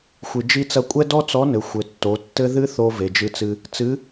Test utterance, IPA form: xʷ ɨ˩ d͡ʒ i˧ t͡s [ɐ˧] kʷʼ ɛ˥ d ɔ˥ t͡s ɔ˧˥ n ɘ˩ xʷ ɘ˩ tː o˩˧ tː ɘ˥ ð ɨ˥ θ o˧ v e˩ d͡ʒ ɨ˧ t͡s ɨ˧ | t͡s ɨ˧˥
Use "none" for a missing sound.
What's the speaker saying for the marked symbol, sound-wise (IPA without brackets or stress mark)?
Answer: ɐ˧